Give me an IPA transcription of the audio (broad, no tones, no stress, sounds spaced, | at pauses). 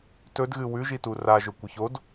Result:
t ɵ d ɣ ɨ w ʉ ʒ i t u r a ʒ ɵ kʷ ɨ ç o d